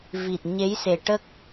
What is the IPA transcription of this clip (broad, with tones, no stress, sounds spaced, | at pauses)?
v i˨˩ t̚ ɲ e˧˥ j s e˨˩ ʈ ə˦˥ k̚